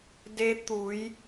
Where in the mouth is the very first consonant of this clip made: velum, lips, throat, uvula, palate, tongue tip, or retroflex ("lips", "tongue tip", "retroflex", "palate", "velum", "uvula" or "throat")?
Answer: tongue tip